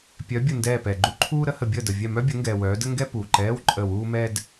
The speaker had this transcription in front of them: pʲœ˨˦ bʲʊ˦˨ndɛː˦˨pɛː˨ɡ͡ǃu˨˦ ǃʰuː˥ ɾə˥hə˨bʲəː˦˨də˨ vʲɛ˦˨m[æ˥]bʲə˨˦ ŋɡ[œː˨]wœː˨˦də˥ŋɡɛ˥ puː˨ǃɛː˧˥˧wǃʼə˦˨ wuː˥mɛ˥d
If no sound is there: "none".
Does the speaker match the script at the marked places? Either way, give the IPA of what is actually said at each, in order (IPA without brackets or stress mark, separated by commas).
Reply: œ˥, ɛː˨